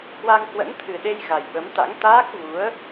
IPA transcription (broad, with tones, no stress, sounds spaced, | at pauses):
h w a˧ ŋ h w ə̰˧˥ n t̪ʰ ɨ˨˩ ɗ e˧ j ɣ a˨˩ j ɓ ə˨˦ m t̪ a̰˧˥ ŋ t̪ aː˦˥ k̚ v u˨˦ ə̯